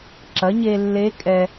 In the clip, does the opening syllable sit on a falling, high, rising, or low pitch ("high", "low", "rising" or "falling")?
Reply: rising